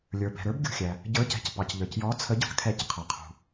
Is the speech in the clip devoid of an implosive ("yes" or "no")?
yes